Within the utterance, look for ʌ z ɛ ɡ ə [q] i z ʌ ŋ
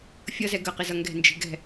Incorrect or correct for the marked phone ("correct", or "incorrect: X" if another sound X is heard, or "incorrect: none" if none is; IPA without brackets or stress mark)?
correct